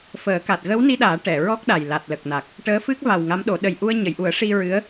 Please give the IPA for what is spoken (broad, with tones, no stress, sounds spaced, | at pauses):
f əː˨˩˦ k a˨˩ t̚ ɣ ə˧˥ w n i˧ ɗ aː˨˩˦ ʈ ɛ˨˩˨ ɹ ɔ˦˥ k̚ ɗ a˨˩ j l a˨˩ t̚ l ə˨˩ k̚ n a˨˩ k̚ | ʈ əː˧˥ f ɨ˦˥ k̚ v a˨˩ w ŋ a˧˥ m ɗ o˨˩˦ ɗ ə˨˩ j ʔ u˧ ə̯ ɲ ə˨˩˨ j ʔ u˨˩˦ ə̯ ʂ i˧ ɹ ɨ˧˥ ə̯